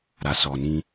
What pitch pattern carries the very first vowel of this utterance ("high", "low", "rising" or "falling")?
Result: low